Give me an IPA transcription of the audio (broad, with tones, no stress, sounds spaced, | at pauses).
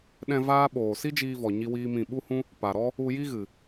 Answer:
ɗ ɛ̃˧ v aː˦ ɓ oː˨ s i˦ d͡ʒ iː˧ v ɔ˨ ɲ i˦ w iː˦ m ĩ˦˨ ɓ u˦ h ũ˦ | p a˨ ɾ ɔ˦ | u˧ j i˦ ɣ ɨ˨